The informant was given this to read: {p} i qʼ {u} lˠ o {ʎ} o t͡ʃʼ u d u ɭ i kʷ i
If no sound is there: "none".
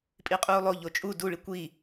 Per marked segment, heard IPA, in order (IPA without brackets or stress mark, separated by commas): pʼ, uː, ʎ